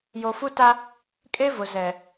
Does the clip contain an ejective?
yes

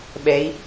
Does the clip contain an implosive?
yes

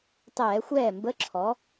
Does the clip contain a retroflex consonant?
no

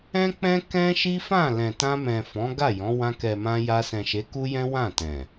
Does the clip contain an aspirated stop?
no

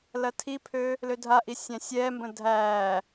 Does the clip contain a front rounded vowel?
yes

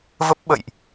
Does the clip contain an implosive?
yes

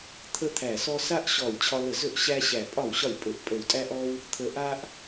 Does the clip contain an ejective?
yes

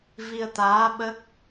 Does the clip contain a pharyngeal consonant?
no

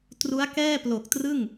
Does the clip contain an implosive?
no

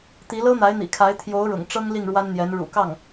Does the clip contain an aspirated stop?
yes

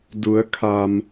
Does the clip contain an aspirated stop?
yes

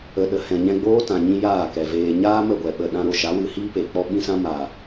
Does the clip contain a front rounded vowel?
no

